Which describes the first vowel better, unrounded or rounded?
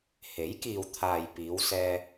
unrounded